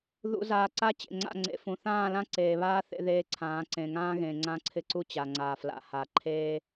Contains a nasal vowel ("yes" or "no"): yes